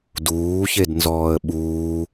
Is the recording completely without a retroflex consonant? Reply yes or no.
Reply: yes